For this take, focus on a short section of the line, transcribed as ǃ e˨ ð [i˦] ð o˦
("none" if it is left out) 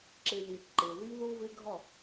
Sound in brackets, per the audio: i˦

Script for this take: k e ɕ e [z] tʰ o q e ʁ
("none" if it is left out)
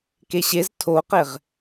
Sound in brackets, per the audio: z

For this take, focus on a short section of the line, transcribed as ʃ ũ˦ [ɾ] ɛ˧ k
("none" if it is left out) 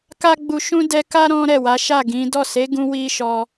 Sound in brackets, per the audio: d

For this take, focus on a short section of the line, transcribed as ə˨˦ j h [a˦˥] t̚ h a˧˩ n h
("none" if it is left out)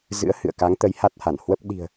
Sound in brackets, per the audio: a˦˥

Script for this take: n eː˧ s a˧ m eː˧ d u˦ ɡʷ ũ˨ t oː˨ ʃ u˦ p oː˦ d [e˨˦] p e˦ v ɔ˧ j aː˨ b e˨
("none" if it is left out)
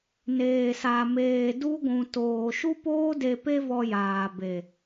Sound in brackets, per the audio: e˧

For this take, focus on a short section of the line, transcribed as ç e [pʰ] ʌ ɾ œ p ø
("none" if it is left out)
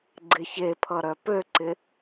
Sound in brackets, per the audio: pʰ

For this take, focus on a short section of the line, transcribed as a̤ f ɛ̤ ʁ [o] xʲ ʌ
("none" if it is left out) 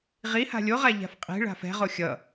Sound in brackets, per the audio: o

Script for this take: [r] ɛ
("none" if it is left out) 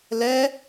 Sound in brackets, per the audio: l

